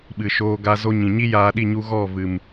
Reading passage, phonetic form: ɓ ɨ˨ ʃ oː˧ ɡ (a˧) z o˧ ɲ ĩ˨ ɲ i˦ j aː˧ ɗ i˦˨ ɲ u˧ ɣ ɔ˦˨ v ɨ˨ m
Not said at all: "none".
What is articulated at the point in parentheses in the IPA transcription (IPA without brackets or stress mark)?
a˧